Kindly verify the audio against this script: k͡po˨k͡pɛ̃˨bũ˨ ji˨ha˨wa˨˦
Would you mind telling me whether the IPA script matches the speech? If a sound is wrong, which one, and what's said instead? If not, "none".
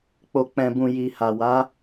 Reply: none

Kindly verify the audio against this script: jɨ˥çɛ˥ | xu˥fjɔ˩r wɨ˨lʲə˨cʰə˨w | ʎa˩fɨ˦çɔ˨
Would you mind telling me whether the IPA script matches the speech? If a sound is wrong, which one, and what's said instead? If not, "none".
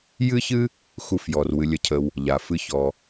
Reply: ɛ˥ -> ɨ˥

